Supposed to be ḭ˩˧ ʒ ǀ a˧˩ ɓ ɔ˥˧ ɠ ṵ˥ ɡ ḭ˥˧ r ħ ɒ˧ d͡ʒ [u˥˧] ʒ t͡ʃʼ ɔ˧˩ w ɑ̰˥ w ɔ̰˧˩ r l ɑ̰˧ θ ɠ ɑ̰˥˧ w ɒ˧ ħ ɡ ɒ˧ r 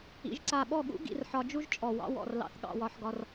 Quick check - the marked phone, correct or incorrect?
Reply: incorrect